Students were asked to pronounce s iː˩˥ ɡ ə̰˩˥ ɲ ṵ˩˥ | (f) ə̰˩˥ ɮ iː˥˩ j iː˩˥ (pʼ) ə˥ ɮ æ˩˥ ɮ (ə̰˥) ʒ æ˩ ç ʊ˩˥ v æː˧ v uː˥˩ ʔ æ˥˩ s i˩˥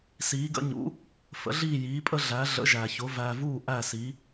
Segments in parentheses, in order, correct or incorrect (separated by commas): correct, correct, incorrect